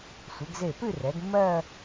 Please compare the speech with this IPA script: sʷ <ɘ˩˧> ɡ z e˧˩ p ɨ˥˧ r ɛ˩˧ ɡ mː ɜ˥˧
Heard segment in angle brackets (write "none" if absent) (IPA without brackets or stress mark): ɘ˩˧